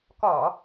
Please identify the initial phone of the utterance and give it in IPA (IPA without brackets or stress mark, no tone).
k